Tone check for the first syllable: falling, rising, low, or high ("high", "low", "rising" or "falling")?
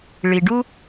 low